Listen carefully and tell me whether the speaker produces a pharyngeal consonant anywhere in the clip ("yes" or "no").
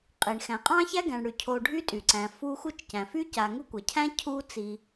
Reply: no